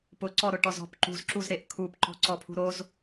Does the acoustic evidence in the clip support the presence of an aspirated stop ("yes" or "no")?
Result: yes